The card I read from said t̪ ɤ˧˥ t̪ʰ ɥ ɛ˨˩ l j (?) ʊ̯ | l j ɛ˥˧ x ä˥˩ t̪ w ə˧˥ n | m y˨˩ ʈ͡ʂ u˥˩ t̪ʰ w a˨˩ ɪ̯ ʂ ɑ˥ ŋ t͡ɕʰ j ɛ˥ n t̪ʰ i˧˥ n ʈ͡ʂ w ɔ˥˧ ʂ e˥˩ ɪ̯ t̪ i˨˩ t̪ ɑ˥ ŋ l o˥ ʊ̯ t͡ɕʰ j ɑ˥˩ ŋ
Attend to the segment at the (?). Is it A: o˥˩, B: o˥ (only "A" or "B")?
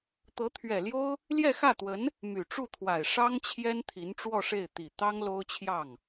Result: B